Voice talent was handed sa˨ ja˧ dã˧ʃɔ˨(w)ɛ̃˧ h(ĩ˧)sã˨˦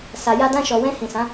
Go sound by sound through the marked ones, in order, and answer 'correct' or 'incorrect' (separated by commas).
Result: correct, incorrect